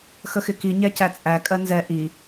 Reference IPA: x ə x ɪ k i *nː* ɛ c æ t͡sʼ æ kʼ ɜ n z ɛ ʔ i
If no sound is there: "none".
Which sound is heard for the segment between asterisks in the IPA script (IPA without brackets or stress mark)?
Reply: ɲ